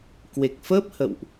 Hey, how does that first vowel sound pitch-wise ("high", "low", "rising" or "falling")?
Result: low